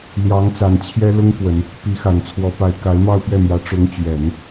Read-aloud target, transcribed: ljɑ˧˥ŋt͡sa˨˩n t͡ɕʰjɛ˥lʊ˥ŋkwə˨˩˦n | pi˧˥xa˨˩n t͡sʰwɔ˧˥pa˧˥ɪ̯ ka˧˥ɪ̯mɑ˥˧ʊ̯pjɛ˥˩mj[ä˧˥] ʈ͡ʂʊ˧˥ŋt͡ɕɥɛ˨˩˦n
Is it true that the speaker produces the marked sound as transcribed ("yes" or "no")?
yes